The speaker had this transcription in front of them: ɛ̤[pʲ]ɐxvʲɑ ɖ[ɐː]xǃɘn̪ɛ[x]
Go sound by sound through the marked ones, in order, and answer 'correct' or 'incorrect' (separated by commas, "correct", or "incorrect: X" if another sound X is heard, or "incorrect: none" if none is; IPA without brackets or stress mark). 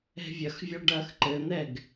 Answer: incorrect: vʲ, correct, incorrect: ɡ